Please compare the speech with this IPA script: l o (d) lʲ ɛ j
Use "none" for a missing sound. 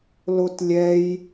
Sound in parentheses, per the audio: t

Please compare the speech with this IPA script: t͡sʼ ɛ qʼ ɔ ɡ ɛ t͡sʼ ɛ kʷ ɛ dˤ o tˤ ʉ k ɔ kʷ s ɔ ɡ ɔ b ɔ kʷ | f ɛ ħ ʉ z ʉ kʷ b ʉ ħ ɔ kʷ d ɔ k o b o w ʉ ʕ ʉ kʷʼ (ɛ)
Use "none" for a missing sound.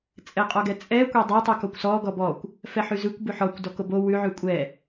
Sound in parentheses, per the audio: ɛ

